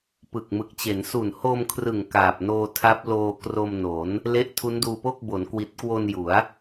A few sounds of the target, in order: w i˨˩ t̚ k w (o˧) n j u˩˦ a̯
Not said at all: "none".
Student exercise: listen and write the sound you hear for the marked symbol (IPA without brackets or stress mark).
o˧